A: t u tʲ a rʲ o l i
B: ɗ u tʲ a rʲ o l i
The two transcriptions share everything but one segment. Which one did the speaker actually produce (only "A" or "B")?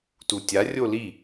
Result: A